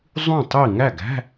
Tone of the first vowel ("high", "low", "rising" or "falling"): falling